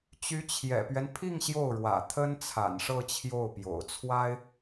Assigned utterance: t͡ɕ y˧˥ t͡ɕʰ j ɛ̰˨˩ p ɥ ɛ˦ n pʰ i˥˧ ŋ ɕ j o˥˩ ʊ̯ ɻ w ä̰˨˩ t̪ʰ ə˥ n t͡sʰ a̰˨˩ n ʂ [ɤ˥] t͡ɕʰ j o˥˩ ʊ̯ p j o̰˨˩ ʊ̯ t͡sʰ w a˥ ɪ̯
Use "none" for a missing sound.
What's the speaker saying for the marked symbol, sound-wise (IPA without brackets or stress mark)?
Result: ɤ˥˧